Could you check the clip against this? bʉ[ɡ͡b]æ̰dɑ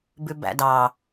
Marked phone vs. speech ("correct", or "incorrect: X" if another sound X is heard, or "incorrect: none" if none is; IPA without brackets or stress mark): incorrect: b